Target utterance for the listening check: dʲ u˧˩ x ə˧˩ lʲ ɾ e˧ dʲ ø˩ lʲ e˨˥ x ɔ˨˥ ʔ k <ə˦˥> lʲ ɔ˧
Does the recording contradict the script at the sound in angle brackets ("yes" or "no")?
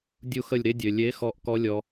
yes